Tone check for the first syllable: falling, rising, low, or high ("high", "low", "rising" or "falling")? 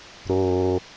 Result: low